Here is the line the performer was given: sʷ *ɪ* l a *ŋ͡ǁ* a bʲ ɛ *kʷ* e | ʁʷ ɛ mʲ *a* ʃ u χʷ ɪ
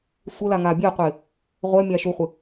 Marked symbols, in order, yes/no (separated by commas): no, no, no, yes